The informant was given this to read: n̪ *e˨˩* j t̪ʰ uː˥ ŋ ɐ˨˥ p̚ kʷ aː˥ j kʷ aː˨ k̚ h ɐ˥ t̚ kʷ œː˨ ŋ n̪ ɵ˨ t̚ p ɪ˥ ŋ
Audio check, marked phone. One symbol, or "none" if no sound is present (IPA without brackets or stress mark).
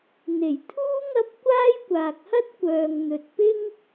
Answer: e˨˩